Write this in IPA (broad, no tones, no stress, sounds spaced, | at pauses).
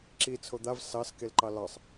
ǁ i t͡sʰ o d̪ a v s ɑ s k e l ǃ ɑ l ɑ sˤ